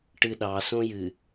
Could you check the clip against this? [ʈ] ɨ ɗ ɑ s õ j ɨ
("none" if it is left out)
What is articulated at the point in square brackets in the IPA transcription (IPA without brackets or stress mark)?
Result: ʈ